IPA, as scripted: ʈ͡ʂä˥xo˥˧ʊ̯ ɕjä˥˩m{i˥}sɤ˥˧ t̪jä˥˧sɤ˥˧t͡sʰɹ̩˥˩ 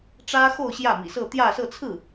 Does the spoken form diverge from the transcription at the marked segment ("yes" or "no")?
yes